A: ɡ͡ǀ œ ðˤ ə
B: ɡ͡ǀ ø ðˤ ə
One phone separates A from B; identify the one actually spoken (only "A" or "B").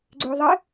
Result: B